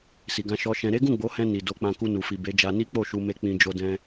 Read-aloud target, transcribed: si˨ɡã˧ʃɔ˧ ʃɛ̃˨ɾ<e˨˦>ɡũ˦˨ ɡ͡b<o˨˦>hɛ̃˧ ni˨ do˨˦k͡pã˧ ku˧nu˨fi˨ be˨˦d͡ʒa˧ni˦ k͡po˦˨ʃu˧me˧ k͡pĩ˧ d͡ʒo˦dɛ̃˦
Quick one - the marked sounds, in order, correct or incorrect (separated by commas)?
correct, correct